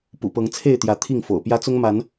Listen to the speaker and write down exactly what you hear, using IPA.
p ṵ˨˩ p ɤ˨˦ ŋ t͡sʰ e˥˨ ɪ̯ t̪ j ä˨˦ t̪ʰ i˥˨ ŋ f o̰˨˩ ʊ̯ p j ä˦ t͡s ʊ˦ ŋ m a˨˦ n

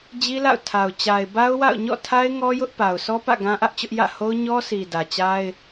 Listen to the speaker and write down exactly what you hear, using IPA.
d͡ʑ i˦ l a̰˦˨ ʊ̯ tʰ a˨ ʊ̯ t͡ɕ a˨ ɪ̯ b a˦ ʊ̯ w a̰˦˨ ʊ̯ ɲ ɔ̰˦˨ tʰ a˦ ɪ̯ ŋ ɔ˦ j ʊ˦ ʔ p a˨ ʊ̯ s ɔ˦ p ä̰˦˨ ɡ ã˦ ʔ ä˦ ʔ t͡ɕ ʊ˦ ʔ j ä̰˦˨ h o˦ ʊ̯ ɲ ɔ˦ s i˨ d ä˨ t͡ɕ a˦ ɪ̯

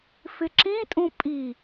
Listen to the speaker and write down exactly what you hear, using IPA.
f ɪ ǁ ĩ tʼ ũ pʼ i

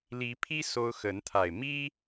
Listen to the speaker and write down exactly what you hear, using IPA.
l i˨˦ pʰ i˦ s o˦ ʊ̯ x ə˨˦ n t̪ʰ a˨˩ ɪ̯ m i˦

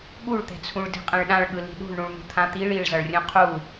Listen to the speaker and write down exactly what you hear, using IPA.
ɠ u ɭ t̪ ɛ̤ t͡sʰ ũ ɭ d i̤ qʼ ɛ̃ ɭ ɗ ã ɭ ɠ ɯ l i̤ ɗ ṳ ɭ ɳ ũ ɭ n̪ ṳ t̪ʰ ã t̪ i ɭ i ɭ z ʌ ɭ rʲ ũ qʰ u

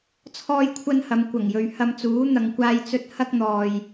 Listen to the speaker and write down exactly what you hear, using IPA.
t͡sʰ ɔː˥ j kʷʰ ɐ˥ n h ɐ˨˧ m kʷ ɐ˨˩ ŋ j ɵ˨ ɥ h ɐ˧ m t͡s uː˨˥ n̪ ɐ˨ ŋ kʷ aː˧ j t͡s ɵ˧ t̚ h ɐ˥ k̚ n̪ ɔː˨ j

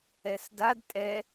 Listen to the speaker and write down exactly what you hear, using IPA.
ɛ s d a d tʼ ɛ

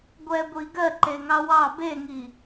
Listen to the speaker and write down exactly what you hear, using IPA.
ɡʷ ɛ ɡʷ i ɡ ɜ ǃ e ŋ ɑ w ɑ b e ŋ i

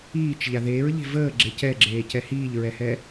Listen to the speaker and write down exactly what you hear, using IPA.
iː t͡ʃ ʎ a ð eː ɹ ʎ e̤ v əː ɡ͡ǁ e c ɛ ɡ͡ǁ eː c ɛ h iː ʎ ɹ ɛ h ɛ

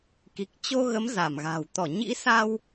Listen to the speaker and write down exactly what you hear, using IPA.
k i˨˩ k̚ t͡ɕ o˧ ɣ ə˨˦ m z a˧˩ m ɣ a̤˨˩ w t̪ ɔ˧˩ ɲ ḭ˧˥ s aː˧ w

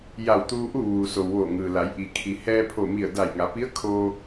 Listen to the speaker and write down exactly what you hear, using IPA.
j a˧˩ w t̪ uː˧ ʔ u˥˨ ʋ uː˩ s o˩ w ʋ oː˧˩ ŋ ɯː˩ l a˩˧ j ʔ i˩ kʰ i˩ h ɛː˧ pʰ o˧˩ m i˧˩ ə̯ d a˧˩ j ŋ a˩˧ p i˧˥ ə̯ kʰ oː˧

